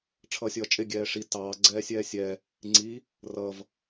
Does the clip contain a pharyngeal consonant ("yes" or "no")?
no